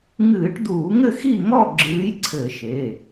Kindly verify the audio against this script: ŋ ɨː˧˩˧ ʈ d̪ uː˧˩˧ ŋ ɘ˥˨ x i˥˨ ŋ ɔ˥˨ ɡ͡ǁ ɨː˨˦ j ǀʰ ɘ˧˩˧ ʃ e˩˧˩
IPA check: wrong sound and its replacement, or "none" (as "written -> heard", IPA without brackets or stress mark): none